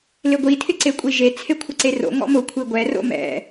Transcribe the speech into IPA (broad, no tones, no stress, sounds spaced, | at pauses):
l ɪ ɡʷ i tʰ ɪ ǀ e kʷʼ i ʒ e t͡sʰ e kʷʰ ɪ ǀ e r o̰ ŋ ɔ̰ m ʊ kʷʰ i ɡʷ ɛ r o̰ m ɛ̰